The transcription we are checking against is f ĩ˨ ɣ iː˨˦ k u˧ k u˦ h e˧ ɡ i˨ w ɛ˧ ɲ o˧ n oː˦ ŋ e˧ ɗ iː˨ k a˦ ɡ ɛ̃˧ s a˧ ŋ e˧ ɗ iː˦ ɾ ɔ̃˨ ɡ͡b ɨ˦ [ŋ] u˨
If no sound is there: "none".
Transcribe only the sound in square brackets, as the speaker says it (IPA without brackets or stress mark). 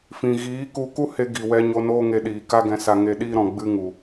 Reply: ŋ